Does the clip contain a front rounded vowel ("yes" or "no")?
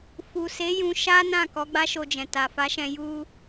no